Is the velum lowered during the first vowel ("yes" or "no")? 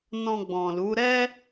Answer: yes